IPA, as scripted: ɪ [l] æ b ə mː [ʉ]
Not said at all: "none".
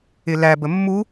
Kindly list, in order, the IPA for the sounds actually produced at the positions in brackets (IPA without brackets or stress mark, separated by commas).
l, u